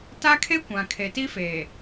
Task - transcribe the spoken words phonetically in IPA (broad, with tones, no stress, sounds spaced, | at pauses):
t a˦ kʰ e˦ kʷ ã˨ kʰ e˨ t i˦ f eː˨